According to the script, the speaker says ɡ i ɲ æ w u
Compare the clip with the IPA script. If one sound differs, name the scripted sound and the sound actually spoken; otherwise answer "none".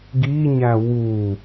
none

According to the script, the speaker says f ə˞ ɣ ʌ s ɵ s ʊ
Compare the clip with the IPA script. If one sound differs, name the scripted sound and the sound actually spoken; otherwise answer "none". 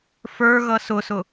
ɵ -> ʊ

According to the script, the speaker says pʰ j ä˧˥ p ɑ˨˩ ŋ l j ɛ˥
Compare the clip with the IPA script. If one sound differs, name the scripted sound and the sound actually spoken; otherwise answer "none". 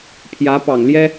none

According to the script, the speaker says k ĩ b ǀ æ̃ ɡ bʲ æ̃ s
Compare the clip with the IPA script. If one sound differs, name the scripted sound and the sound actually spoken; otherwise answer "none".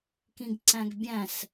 b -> ɡ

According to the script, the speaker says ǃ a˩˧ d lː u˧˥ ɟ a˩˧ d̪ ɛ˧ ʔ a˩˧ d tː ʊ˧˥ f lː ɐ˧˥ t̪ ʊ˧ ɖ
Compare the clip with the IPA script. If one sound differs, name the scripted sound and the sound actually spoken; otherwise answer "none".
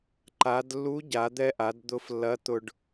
tː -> d̪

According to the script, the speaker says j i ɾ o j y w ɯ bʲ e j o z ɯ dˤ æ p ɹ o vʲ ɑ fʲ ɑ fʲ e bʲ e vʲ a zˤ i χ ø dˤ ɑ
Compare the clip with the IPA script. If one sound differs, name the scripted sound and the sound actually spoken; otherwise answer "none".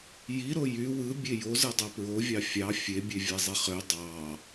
a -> æ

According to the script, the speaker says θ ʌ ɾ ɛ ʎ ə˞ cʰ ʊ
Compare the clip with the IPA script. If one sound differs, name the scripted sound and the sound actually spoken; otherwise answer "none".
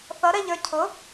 none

